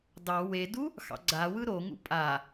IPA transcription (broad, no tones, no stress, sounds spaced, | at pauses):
d ɑ w e d u | x ɑ̰ ɡ͡ǀ a w ɯ ɾ o ŋ ṵ pʼ a